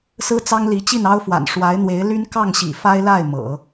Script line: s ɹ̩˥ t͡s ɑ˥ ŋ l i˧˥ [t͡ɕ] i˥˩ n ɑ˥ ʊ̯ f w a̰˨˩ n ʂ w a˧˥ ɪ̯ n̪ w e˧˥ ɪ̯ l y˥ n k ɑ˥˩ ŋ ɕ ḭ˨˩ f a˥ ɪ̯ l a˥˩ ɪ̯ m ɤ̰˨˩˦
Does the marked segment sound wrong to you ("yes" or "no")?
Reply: no